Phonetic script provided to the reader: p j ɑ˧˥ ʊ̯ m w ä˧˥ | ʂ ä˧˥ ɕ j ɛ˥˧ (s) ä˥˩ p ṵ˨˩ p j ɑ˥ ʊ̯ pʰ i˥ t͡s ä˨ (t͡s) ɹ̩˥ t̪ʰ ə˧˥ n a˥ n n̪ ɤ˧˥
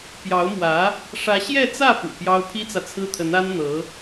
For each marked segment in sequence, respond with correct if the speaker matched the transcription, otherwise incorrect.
incorrect, incorrect

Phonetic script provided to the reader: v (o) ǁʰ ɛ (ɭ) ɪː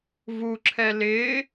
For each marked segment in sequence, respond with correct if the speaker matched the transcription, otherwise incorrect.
incorrect, incorrect

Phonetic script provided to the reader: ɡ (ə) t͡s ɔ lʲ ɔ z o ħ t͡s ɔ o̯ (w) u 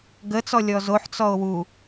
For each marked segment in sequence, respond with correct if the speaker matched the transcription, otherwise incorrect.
correct, correct

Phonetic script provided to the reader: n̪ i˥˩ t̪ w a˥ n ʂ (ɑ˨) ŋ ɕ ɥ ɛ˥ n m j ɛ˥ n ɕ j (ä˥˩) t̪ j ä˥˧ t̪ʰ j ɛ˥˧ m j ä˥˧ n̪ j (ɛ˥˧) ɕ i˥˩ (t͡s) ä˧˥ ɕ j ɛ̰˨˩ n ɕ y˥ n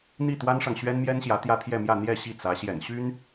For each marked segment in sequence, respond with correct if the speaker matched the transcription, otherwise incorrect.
correct, incorrect, correct, correct

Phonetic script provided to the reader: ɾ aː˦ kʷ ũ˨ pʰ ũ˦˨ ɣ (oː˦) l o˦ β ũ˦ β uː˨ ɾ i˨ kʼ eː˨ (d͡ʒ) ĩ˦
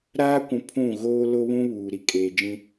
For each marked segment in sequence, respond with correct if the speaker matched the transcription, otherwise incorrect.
correct, correct

